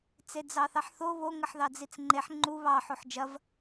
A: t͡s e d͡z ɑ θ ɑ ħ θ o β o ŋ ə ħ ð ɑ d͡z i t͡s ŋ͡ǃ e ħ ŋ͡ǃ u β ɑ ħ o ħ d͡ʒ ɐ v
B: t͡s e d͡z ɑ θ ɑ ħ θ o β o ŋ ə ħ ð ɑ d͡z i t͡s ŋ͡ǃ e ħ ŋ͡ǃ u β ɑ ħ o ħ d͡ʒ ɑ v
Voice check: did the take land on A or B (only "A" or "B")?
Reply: A